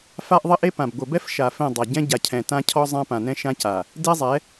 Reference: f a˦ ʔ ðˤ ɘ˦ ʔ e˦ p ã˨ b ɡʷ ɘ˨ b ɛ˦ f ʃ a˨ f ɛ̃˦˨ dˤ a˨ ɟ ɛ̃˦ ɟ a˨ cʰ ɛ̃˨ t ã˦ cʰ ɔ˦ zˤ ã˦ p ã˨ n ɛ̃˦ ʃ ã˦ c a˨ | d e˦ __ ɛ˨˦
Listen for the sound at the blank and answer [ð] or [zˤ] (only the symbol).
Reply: zˤ